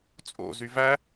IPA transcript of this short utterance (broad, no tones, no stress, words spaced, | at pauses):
t͡sʼo̰zy væ